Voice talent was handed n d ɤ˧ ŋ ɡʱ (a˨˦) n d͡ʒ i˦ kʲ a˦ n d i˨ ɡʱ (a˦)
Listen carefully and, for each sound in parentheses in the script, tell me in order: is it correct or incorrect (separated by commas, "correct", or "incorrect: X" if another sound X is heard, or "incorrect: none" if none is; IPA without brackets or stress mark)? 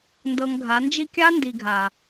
correct, incorrect: a˨